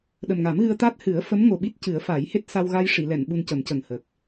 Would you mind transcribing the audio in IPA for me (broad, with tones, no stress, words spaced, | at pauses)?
ɗə˨˩mŋa˨˩˦mɣɨ˧ə̯ t̪a˦˥t̚ hɨ˨˩˦ə̯ fə˧˥mŋo˨˩ɓi˦˥t̚ cɨ˨˩˦ə̯fa˨˩˦jhe˦˥t̚ sa˧wɣa˧jʂi˨˩˨lɛ˨˩˨n ɓu˧ncə˨˩˦mcə˨˩ŋhəː˨˩k̚